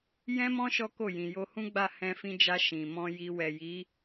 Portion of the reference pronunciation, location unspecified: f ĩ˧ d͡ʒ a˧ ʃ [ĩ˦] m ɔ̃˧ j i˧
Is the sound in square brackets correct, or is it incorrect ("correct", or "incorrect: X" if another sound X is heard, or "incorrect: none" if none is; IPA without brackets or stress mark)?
incorrect: ĩ˨